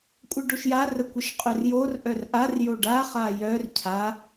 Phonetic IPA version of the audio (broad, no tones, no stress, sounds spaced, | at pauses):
kʷʼ ə ɖ o ʃ j a r ə kʷ ə ʃ qʼ œ r j o r ʔ œ r ʔ a r j o ɖ a χ a j œ r cʰ a